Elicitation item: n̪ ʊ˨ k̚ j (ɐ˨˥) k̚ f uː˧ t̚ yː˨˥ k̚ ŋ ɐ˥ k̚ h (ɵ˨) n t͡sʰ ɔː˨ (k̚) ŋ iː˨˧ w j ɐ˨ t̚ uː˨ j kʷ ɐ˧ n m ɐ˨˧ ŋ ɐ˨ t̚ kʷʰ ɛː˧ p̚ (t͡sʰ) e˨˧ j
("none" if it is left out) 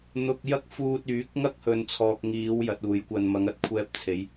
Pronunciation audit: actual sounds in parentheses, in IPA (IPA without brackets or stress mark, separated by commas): ɐ˥, ɵ˨, k̚, t͡sʰ